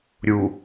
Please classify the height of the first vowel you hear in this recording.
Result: high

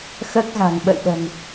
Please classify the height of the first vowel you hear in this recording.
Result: mid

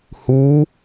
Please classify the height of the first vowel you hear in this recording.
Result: high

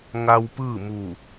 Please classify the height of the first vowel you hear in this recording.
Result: low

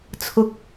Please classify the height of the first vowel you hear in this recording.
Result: high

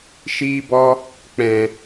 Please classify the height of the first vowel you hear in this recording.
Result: high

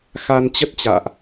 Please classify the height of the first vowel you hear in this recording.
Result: low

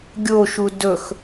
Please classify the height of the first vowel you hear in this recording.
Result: mid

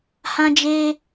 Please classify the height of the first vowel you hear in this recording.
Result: low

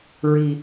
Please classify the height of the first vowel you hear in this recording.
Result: high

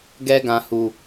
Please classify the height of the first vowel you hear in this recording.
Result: mid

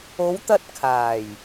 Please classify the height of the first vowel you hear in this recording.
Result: mid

